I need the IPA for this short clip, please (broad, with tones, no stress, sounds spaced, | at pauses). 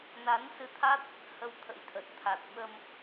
n a˨˦ n s ɨ˧ t̪ʰ a˦˥ t̚ | h ə˧ w t̪ʰ ə̰˧˥ j t̪ʰ ə˨˩ t̚ t̪ʰ a˨˩ t̚ ɓ ə˧ m